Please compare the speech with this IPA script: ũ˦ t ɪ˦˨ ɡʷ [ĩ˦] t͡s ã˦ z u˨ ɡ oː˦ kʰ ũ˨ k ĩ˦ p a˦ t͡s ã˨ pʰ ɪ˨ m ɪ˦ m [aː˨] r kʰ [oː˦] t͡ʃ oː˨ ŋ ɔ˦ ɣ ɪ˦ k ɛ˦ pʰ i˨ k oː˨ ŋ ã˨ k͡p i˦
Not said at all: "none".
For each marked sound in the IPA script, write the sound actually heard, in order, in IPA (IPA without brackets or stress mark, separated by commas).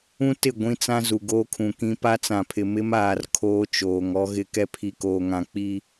ĩ˦, aː˨, oː˦